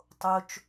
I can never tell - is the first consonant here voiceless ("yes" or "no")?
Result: yes